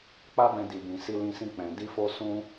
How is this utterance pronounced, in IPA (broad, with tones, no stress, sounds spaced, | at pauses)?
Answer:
k͡p a˦ b ɛ̃˧ d i˨ b ĩ˨ s i˧ l ĩ˧ s ĩ˧ k͡p ɛ̃˨ d i˧ f o˧ s ũ˦